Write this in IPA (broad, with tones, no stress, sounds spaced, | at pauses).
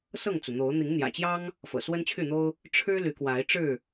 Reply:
s ɤ˥˨ ŋ t͡s u˩ n̪ o˨˦ ʊ̯ n̪ i˨˦ ŋ n̪ j ä̰˨˩ t͡ɕ j ɑ˦ ŋ | f ɤ̰˨˩ s w ə˦ n t͡ɕʰ y˥˨ n̪ o˦ ʊ̯ | ʈ͡ʂʰ ɻ̩˦ l y˨˦ k w a˨˦ ɪ̯ ʈ͡ʂ ɻ̩˥˨